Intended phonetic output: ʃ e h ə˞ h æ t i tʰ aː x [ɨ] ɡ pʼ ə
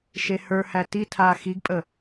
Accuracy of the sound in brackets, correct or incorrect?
incorrect